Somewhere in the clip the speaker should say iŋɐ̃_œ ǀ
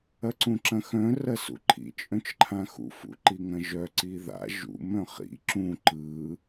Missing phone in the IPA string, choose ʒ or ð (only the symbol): ʒ